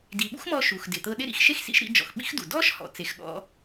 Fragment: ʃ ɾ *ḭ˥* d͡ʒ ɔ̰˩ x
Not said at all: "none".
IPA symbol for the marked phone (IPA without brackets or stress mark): ḭ˧